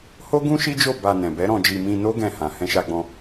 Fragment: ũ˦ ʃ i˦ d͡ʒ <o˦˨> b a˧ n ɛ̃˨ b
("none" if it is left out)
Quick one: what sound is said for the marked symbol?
o˦˨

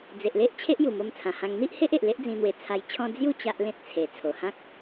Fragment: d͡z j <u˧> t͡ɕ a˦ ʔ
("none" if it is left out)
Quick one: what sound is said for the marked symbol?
u˥˧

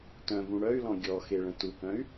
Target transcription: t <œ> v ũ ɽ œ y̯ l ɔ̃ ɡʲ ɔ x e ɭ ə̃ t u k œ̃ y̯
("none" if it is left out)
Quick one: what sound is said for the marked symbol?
œ̃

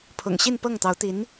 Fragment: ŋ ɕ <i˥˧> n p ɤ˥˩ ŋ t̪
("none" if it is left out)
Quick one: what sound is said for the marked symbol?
i˥˧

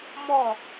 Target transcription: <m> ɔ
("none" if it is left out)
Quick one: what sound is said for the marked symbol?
m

